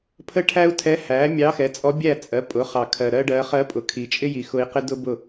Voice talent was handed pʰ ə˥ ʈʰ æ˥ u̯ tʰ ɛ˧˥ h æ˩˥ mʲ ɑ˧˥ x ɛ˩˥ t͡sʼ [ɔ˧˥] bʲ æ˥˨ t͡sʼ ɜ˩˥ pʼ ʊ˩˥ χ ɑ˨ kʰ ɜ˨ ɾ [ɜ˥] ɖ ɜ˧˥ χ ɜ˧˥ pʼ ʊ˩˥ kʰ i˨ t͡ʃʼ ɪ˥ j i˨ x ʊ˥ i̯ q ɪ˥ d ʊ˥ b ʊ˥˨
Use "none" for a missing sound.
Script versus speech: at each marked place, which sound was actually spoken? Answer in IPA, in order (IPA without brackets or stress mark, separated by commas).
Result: ɔ˧˥, ɜ˥